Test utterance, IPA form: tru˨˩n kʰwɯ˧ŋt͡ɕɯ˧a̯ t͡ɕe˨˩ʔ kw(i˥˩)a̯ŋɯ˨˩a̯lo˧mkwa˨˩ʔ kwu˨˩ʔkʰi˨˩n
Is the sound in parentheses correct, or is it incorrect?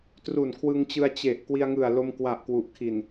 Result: incorrect